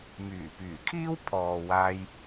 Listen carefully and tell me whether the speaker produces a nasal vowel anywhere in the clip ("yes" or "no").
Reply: no